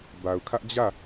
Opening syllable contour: low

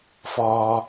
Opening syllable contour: low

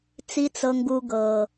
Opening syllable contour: high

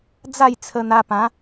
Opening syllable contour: falling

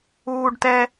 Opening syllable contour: high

